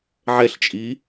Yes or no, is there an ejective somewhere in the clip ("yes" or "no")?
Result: yes